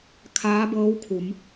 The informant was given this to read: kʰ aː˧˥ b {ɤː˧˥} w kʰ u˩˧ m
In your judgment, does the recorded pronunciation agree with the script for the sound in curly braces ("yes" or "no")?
yes